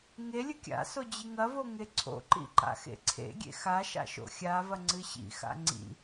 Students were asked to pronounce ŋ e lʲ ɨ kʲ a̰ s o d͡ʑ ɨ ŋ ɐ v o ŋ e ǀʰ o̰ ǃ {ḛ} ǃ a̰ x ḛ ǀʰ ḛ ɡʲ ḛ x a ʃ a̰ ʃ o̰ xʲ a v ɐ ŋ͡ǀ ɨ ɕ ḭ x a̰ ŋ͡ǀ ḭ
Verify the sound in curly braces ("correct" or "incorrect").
incorrect